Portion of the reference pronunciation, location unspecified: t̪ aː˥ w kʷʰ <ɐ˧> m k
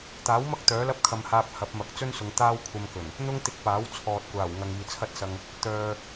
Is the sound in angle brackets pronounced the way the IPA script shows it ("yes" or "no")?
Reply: yes